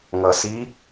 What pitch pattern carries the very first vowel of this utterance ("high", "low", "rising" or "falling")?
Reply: low